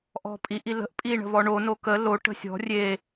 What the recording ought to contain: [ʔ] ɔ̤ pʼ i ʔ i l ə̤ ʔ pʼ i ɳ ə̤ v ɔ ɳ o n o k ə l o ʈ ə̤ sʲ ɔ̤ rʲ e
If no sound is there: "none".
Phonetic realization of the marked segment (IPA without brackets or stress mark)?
ʔ